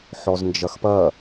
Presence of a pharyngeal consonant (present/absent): present